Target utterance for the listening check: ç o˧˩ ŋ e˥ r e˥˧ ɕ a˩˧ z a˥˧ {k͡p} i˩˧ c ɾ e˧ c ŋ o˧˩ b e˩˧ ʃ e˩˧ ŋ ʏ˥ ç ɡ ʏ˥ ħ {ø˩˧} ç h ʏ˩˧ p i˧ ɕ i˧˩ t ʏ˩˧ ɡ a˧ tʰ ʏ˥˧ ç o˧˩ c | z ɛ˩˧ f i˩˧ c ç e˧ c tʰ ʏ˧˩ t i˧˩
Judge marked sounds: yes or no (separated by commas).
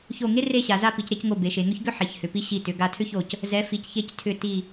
no, no